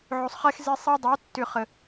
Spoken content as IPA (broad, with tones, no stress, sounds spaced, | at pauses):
ʕ o˨ sˤ χ ɛ˦ x z e˦ sˤ ɛ˦ dˤ o˨˦ tː ʏ˨ χ ə˨